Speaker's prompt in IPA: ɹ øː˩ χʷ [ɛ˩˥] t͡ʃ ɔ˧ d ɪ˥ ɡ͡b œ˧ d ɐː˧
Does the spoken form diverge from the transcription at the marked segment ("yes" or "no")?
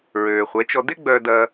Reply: no